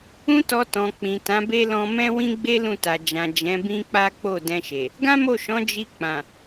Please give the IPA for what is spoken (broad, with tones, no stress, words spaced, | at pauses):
ũ˦tɔ˧tɔ̃˨ k͡pĩ˨tã˨˦be˦ lɔ̃˧mɛ̃˦wĩ˦ɡ͡be˦ lũ˦˨ta˨ d͡ʒã˨ d͡ʒɛ̃˨˦bĩ˦k͡pa˦ k͡po˦˨dɛ̃˧ʃe˨ | ɡã˦mo˦˨ʃɔ̃˨˦ d͡ʒi˧k͡pã˨